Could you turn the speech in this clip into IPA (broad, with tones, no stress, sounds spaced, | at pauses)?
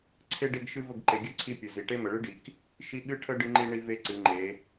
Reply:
ǀʰ e˦ ɖ e˦ ɡ ʃ ɨ˦ v ə˦˨ ɡ ǃ e˨ ɡʲ ɨ˦ ǀʰ i˦ pʲ ɨ˨ z i˨ ʈ e˦ m ə˨ ɭ ɨ˦ ɖ i˨ k | ʃ i˦ ɠ ɨ˦ ʈʰ ə˦ ɖ ɨ˦ ŋ͡ǃ i˦ ɳ i˦ v e˦ ǀ ɨ˨˦ ŋ͡ǃ e˨˦